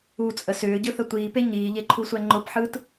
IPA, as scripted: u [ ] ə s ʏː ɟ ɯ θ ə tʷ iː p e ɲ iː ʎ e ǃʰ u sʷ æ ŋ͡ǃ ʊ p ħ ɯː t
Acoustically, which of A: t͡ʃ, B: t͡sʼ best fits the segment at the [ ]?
B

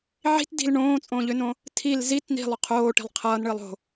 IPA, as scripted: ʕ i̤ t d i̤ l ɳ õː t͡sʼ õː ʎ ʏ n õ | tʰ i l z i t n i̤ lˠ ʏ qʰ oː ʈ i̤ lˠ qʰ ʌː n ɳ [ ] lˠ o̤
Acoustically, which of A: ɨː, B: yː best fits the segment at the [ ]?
A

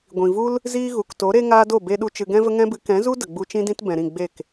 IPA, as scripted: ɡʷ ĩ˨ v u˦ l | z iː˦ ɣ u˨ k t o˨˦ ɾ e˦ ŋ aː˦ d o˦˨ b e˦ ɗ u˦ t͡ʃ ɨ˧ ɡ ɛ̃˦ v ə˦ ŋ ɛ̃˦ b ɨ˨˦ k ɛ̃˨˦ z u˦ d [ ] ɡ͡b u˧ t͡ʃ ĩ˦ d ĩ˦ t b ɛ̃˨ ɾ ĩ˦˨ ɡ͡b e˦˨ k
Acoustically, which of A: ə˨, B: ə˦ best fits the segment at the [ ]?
A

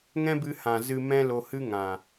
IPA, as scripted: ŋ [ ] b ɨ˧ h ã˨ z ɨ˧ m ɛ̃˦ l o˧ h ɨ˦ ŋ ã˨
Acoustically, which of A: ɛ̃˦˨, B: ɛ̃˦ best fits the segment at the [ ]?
B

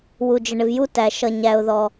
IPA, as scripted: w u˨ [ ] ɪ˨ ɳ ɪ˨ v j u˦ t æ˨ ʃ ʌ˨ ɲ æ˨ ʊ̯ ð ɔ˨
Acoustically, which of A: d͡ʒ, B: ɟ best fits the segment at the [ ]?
A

